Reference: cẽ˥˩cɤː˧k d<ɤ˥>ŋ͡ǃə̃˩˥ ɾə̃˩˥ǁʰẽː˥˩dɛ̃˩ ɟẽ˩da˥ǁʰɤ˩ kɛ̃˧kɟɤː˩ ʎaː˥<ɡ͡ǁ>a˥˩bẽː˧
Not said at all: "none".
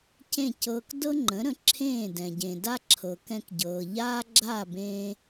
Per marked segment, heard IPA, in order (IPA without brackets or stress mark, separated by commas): ɤ˥, ɡ͡ǁ